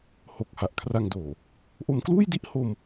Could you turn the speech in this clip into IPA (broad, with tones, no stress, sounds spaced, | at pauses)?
h o˨˩ k̚ h a˨˩ ʔ kʰ r a˧ ŋ d oː˨˩ | ʔ o˧ m k l uː˥˩ j d i˥˩ ʔ h o˧ m